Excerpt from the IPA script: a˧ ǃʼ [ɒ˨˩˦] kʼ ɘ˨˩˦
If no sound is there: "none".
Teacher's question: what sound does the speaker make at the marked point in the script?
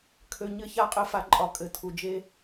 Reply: ɒ˨˩˦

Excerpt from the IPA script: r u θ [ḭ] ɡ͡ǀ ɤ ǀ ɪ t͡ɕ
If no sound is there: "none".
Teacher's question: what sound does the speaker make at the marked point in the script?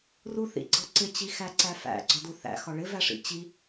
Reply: ḭ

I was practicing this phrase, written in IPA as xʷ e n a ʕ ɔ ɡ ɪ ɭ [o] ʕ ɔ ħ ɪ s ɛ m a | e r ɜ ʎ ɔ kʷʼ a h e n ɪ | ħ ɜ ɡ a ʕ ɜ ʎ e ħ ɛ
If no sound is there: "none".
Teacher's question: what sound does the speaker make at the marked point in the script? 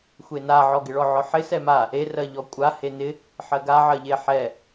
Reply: ɔ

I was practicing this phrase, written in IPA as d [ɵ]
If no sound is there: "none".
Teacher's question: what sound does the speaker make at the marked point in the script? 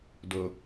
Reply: o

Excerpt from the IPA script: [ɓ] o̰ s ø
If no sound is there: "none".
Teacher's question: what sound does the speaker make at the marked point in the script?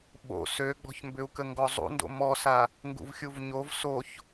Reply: ɓ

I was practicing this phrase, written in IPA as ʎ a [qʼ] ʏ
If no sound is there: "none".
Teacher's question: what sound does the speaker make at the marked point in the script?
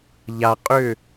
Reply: qʼ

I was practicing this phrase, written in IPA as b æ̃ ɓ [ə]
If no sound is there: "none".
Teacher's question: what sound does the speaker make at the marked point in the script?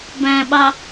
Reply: ɑ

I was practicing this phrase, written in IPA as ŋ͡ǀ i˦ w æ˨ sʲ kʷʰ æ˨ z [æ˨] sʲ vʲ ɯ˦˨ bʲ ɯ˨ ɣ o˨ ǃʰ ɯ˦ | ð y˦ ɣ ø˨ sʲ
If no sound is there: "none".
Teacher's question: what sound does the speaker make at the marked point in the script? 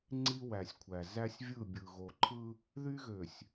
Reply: æ˦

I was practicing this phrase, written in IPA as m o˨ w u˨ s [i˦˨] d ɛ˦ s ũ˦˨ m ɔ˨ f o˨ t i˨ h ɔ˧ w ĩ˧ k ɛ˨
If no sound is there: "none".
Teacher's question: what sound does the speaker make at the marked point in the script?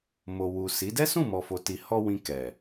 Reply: i˨˦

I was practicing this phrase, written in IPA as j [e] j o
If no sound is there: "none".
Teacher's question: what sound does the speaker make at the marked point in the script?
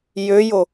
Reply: ø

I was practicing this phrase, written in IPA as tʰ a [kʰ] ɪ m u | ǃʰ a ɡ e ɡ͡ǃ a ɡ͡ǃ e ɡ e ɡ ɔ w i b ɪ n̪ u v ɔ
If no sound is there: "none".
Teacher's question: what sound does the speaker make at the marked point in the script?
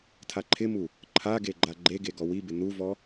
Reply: ǃʰ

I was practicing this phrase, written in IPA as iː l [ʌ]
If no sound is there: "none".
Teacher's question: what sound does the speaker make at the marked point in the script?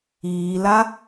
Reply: a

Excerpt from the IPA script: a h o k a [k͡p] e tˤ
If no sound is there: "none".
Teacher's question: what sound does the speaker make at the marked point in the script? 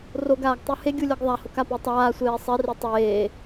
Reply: p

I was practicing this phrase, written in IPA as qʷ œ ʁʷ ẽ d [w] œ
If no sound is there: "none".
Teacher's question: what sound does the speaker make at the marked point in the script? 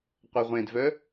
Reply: v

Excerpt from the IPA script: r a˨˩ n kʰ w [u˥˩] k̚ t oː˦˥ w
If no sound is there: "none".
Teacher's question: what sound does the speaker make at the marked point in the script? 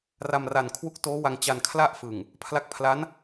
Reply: u˦˥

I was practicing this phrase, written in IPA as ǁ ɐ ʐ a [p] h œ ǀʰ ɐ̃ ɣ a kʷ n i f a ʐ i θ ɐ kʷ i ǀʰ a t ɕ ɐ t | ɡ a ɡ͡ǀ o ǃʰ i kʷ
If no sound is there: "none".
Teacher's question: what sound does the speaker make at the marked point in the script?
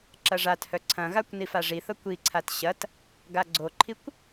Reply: t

